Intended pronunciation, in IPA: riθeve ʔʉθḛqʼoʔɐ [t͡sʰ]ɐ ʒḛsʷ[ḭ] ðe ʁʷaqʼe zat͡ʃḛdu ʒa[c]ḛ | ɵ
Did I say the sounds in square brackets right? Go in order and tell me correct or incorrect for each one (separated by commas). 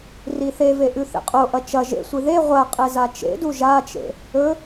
incorrect, incorrect, incorrect